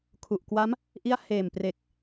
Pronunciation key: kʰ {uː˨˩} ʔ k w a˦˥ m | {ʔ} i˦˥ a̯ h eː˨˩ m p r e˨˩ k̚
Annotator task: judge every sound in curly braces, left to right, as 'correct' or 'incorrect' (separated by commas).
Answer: incorrect, correct